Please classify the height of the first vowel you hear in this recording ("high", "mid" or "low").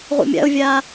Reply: high